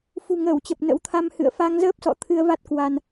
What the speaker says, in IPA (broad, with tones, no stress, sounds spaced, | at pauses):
f ṳ˨˩ ŋ əː˧˩ w t͡ɕ ə˨˩ p̚ n ə̰˧˥ w t̪ʰ a˧ m h ɨ̰˧˨ ə̯ f a˧ ŋ z əː˦˥ p̚ s ɔ̰˧˨ t̪ʰ ɨ˧ ə̯ v a˦˥ t̚ k w a˧ n